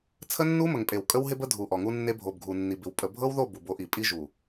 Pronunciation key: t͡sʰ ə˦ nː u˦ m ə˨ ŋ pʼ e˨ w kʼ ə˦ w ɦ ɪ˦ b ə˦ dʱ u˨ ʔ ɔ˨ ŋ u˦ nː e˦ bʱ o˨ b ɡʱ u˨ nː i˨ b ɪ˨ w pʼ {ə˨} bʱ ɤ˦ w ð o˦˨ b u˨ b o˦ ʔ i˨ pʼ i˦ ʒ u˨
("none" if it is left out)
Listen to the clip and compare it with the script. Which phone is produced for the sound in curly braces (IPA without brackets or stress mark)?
ə˨